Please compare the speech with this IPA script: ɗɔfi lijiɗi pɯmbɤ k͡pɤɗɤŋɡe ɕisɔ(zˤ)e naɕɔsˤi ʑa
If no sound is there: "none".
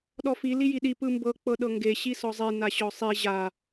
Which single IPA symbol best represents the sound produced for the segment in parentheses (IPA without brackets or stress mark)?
zˤ